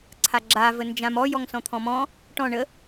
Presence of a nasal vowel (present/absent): present